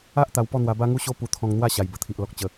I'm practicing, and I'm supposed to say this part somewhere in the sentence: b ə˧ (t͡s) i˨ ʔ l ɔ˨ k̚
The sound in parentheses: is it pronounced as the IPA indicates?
no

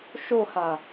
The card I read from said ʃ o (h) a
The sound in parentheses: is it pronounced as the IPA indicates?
yes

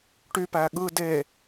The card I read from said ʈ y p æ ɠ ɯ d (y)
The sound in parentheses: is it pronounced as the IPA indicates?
no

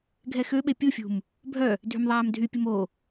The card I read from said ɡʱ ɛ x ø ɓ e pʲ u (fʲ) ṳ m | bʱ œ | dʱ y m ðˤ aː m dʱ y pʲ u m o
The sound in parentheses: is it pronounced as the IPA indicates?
yes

